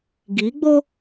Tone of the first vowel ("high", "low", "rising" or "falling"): rising